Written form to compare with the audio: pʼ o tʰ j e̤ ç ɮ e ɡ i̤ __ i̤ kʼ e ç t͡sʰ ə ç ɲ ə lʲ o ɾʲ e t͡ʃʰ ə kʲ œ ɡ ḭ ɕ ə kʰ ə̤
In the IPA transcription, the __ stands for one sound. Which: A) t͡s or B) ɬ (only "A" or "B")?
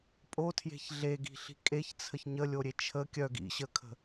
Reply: B